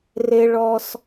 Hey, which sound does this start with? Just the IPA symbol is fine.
r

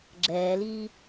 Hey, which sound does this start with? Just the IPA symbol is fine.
ɡ͡ǁ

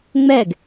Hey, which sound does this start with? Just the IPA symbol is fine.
ŋ͡m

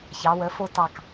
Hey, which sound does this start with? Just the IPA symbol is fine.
ç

